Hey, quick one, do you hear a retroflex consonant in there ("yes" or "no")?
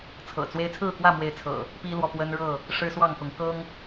yes